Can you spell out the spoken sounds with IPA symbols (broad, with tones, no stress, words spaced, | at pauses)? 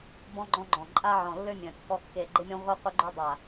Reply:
bɔ̃˧ɡ͡ǃɔ̃˧ɡ͡ǃɔ̃˨˩ ǃʼa˧ʕɔ̃˨˩lːø˧ mʲœ̃˨˩kːɔ˧ kːe˨˩ɡ͡ǃe˧mʲɔ̃˧ ʁʷœ˧ qʷœ˧ɡ͡ǃœ˧dˤa˨˩